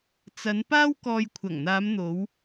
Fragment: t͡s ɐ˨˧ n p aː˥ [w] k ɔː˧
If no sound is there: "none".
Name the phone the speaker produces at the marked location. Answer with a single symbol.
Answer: w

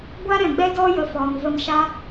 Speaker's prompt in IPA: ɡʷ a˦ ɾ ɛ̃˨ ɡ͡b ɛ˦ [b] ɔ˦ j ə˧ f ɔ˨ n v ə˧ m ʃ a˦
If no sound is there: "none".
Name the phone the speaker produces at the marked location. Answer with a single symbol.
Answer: d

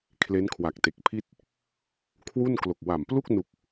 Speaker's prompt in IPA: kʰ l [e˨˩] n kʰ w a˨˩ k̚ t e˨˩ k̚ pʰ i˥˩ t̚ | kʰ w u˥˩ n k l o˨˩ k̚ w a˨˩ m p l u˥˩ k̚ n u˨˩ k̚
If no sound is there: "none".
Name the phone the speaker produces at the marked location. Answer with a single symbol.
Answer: e˦˥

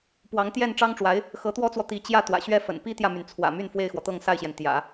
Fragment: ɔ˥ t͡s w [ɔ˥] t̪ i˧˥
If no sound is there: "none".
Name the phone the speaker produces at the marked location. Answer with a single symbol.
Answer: ɔ˨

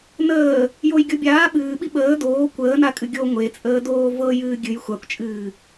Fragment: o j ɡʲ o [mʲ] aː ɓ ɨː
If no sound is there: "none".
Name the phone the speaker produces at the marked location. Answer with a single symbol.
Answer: bʲ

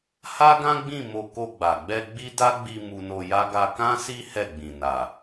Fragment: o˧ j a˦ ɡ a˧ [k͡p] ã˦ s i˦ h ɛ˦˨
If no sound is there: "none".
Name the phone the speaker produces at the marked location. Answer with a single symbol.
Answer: k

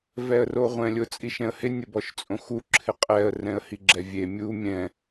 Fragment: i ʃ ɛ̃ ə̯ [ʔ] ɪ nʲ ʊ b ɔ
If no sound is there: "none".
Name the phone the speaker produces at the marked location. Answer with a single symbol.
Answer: h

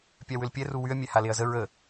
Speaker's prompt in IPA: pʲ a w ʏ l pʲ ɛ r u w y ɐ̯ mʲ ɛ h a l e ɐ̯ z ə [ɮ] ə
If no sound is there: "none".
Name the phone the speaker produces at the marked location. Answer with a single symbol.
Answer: ɹ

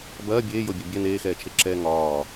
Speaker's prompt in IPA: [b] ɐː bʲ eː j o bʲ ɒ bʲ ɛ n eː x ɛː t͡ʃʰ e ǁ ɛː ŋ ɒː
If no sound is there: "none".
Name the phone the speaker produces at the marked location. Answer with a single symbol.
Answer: b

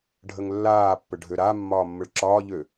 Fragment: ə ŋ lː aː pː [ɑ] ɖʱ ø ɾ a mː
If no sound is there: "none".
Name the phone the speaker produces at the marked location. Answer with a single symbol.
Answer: ə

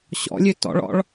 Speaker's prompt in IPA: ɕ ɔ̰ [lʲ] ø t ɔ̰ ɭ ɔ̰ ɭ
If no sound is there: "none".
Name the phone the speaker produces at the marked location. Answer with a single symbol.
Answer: lʲ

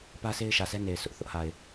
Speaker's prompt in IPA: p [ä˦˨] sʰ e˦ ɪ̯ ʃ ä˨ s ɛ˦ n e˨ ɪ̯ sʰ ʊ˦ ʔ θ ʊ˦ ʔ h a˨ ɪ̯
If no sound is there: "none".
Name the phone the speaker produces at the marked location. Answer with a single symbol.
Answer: ä˦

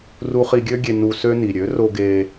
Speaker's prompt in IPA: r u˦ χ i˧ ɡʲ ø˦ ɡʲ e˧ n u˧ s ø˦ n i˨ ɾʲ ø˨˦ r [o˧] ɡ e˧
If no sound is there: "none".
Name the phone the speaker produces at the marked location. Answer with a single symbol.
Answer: o˧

